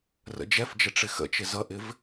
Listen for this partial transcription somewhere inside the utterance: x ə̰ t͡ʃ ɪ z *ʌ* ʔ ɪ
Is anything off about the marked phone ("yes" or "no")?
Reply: no